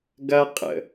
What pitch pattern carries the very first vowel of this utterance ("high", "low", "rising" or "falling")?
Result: high